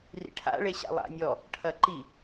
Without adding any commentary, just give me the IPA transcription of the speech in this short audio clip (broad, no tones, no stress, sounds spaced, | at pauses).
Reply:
r ḭ ʈʰ a̰ ɭ e ɕ a̰ lˠ a̰ nʲ ɔ | ʈʰ ɐ ǃ i